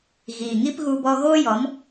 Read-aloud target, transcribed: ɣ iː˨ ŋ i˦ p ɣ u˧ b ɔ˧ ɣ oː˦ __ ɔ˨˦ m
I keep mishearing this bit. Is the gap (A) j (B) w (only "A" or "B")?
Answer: A